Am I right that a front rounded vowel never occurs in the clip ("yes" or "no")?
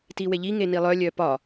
no